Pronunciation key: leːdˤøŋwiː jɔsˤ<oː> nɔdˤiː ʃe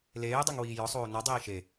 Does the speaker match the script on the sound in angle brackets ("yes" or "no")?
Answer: yes